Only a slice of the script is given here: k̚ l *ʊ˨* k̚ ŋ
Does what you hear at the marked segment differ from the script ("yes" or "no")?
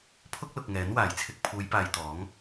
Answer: no